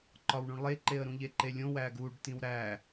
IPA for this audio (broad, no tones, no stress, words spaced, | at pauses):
ǃɒwɳũɳlˠeǃeə̯ ɾũʎeǃelʲõ wæɡuɖ tĩwɾæ